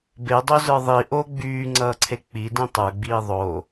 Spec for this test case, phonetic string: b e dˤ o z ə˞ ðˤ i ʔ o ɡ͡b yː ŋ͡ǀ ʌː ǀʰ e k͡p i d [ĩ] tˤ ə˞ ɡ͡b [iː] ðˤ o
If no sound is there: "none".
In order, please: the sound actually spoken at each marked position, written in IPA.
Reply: ĩ, iː

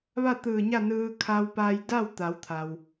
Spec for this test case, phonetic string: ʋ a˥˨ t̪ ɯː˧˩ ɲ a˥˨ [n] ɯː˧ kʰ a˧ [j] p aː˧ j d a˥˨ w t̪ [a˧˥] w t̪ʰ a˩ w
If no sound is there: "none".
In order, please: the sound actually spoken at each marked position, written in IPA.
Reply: n, w, a˩˧

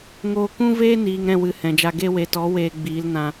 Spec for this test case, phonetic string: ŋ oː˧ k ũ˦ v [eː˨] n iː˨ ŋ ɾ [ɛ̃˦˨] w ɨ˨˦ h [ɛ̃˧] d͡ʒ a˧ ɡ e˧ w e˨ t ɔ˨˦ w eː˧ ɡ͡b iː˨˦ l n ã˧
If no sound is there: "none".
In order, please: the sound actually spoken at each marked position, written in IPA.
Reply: eː˦, ɛ̃˦˨, ɛ̃˨

